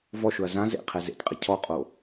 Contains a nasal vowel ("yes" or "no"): yes